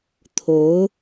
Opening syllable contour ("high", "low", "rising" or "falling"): rising